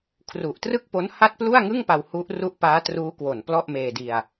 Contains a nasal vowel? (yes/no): no